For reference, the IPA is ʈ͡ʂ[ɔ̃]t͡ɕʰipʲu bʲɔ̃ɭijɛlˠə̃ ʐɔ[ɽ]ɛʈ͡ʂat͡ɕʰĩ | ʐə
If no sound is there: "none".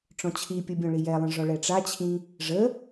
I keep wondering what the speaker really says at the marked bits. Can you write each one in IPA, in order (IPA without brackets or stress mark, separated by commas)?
ɔ̃, ɭ